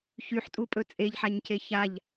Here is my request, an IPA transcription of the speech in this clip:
ç y ħ tʼ u pʼ ɵ t͡sʼ e ʎ ħ a ɲ cʰ e ç a ʎ

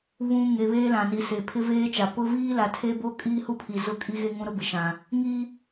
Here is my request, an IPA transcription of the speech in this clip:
β ũ˨ ŋ e˨ β eː˦ l ã˨ n i˨ s e˨ pʰ ɪ˦ v eː˦ t͡ʃ a˨ p ʊ˦ v iː˦ l a˨ tʰ e˦ b o˦ kʼ iː˦ h u˦ pʰ i˨ z ʊ˦˨ kʼ i˦ ɣ e˦ ŋ ũ˦ ɾ ʊ˦ b ɪ˨ ʃ ã˨ | ŋ i˦

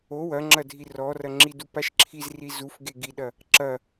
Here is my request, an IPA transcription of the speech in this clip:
o w ɐ ŋ͡ǁ ɐ dʱ i r ɔ r ɐ ŋ͡ǁ i d u p a ʃ ǁʰ i z r i z u f ɡ e ɡ i ɗ ɐ | ǁ ɐ

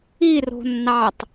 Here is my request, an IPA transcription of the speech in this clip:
i r o̤ nː ɑ tˤ

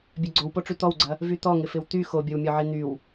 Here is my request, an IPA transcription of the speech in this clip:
bʲ œ ɡ͡ǀ o w p o ʈ͡ʂ y t̪ ɔ w ɡ͡ǀ ɐ | v y t̪ ɔ ŋ ɪ f ɪ w t̪ y x o bʲ ɔ w mʲ ɔ ʕ i n̪ y w

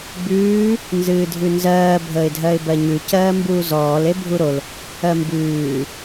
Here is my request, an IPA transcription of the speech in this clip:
b ʉː | n z ɨː dʱ ʉ n z ɜː bʱ əː ɪ̯ dʱ ɜ ɪ̯ b ɜ ɲ ʉ c ɜː m b uː z ɔː l e bʱ u ɾ o l | ɜ m b ʉː

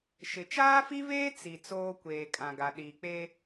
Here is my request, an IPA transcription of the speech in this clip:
ʃ ɪ˨˦ t͡ʃ aː˦ f i˦ v eː˦ t͡s i˨ t͡s oː˦ kʷ eː˨ kʼ ã˨ ɡ a˨ ɗ iː˨ k͡p e˦

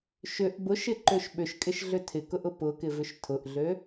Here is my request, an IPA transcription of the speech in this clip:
ʃ ʏ ʔ b ʊ ʃ ɪ ǃ ø ʃ ɓ ʏ ʃ kʼ ɪ ʃ ɮ ʏ tʰ ɪ k ʊ ʔ ʊ p ʊ k ɪ v ʏ ʃ tʰ ʊ ʔ ɮ ø

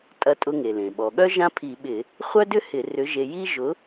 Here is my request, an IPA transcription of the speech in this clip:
tʼ ɐ˨˥ tʼ ʊ˧ ŋ e˩ l ẽ˩ ɓ ɔ˩ ɠ œ˥ ʒ ã˥ pʰ i˧˩˧ ɓ ɪ˧˩˧ | χʷ œ˥ d ʏ˥ h ɪ˧˩˧ r ʏ˨˥ ʒ e˧ j i˥ ʒ ʊ˨˥

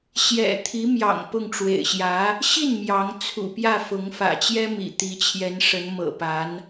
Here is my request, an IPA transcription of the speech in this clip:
ɕ j ɛ̰˨˩ t̪ʰ i˧˥ m j ɑ̰˨˩ ŋ p ʊ˥˩ ŋ ʈ͡ʂ w ḛ˨˩ ɪ̯ ɕ j ä˧˥ | ɕ i˥˩ n m j ɑ˧˥ ŋ t͡sʰ ṵ˨˩ p j ä˥˩ f ʊ˧˥ ŋ f ä̰˨˩ t͡ɕ j ɛ˥ m ḭ˨˩ t̪ i˧˥ t͡ɕʰ j ɛ˧˥ n ʂ ə˧˥ n m ɤ̰˨˩ p a˧˥ n

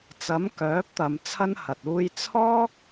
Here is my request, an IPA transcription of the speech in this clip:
t͡s ɐ˨˥ m k œː˨˥ p̚ t̪ ɐ˨˧ m t͡sʰ ɐ˥ n h ɐ˨ t̚ uː˧ j t͡sʰ ɔː˥ k̚

